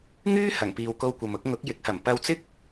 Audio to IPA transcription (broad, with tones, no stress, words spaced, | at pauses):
ŋyː˥ hɐ˨˩ŋpiː˨wko˧wkʷɐ˨m ʊ˥k̚ ŋʊ˨˥k̚jɪ˨˥k̚hɐ˨˩m pɐ˧wt͡sɪ˥k̚